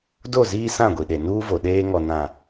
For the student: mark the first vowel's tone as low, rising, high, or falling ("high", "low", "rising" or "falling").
falling